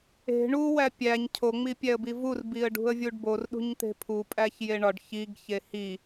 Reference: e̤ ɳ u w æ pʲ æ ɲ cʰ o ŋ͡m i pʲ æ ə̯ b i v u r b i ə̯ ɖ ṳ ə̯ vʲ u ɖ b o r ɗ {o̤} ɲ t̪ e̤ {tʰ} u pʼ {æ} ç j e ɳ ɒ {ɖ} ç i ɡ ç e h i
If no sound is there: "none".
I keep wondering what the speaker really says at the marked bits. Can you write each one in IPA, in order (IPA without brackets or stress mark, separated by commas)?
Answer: ṳ, pʰ, æ, ɖ